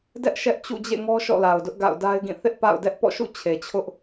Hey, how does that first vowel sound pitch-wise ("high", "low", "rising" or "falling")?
high